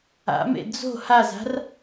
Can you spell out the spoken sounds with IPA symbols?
a̰ m ḛ d͡z o̤ h a z a̤ r

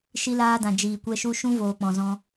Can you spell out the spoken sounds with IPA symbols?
ʃ i˧ l aː˧ d ã˨ d͡ʒ iː˨ kʷ ɛ˧ ʃ u˧ ʃ ũ˦ v oː˨ k͡p ɔ̃˨ z ɔ̃˧

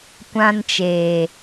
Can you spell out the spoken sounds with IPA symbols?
kʷ ã˧ n t͡ʃ eː˨

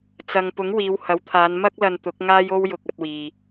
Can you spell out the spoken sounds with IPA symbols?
t͡s ɐ˨ ŋ p ʊ˨˥ ŋ w iː˨˧ w h ɐ˨˥ w t̪ʰ aː˨˧ n m ɐ˥ k̚ l ɐ˧ n t̪ ʊ˨˥ k̚ ŋ aː˥ j o˥ w j ʊ˧ k̚ ɐ˧ t̚ w iː˨

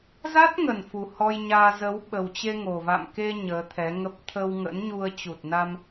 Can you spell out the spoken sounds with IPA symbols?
z a˦˥ t̚ ŋ ə˨˩ n f u˨˩ h ɔ˧ j ɲ aː˧ z ə˨˦ w ɓ ə˨˩ w t͡ɕ e˧ ŋ o˨˩ v a̰˧˨ m k e˧ ɲ əː˨˦ t̪ʰ ɛ˨˦ ŋ ə˦˥ p̚ t̪ʰ ə˧ w ŋ ə̰˧˥ n ɲ u˧ ə̯ t͡ɕ u˨˩ t̚ n a˧ m

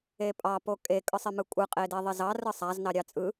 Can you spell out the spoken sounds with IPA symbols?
e pʼ ɑ p o kʼ e kʼ ɯ sˤ ɪ m ɯ kʷʼ ɯ qʼ e d e ðˤ ɪ z ɑ r ɯ sˤ a z n ɑ ɾʲ ɑ t͡sʼ ɯ

